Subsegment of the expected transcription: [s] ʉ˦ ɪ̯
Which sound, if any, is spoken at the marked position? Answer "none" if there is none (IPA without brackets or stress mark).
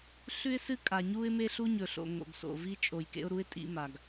ɬ